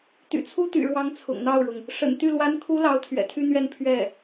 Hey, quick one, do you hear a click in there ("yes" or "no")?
no